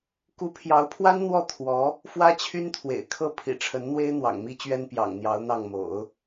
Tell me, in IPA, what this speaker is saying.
k u˧˥ pʰ j ɑ˧˥ ʊ̯ pʰ w a˥ n n̪ w ɔ˥˩ t̪ʰ w ɔ˧˥ | f w ä˥ t͡ɕʰ y˥ n t̪ʰ w ḛ˨˩ ɪ̯ kʰ ɤ˥˩ pʰ ḭ˨˩ ʈ͡ʂʰ ə˧˥ n n̪ w e˥ ɪ̯ n̪ w ɑ̰˨˩ ŋ m i˥ t͡ɕ ɥ ɛ˥ n p j ɑ̰˨˩ ŋ n̪ j ɑ˧˥ ʊ̯ n̪ ɑ˥˩ ŋ m o̰˨˩˦ ʊ̯

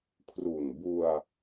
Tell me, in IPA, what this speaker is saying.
kʰ r u˨˩ n b u˧ a̯

